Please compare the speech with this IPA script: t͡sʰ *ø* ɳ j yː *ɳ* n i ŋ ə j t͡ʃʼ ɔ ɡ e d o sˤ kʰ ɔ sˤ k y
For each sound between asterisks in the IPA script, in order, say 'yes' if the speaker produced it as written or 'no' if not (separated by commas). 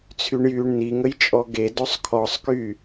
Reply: no, yes